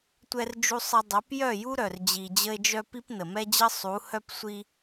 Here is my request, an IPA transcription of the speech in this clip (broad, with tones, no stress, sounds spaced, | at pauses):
tʷ ɛ˧ r d͡ʒ u˧ sˤ ə˧ dˤ œ˨˦ p j œ˦˨ j u˦ ɾ œ˨ r d͡ʑ i˧ d͡ʑ ə˦ e̯ d͡ʒ œ˦ p i˦ p n ə˨ m ɛ˦ d͡ʑ ə˦ sˤ u˨˦ h œ˦ p sʷ i˦